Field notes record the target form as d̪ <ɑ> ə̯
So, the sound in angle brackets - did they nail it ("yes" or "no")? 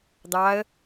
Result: yes